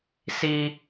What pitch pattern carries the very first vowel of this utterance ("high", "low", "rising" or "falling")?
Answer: high